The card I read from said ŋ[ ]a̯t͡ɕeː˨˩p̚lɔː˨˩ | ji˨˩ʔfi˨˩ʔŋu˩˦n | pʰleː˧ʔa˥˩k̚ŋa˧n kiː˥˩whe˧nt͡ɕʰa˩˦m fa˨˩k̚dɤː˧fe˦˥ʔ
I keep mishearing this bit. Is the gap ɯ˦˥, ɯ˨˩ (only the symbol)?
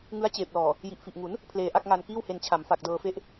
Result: ɯ˦˥